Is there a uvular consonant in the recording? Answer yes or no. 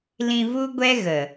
no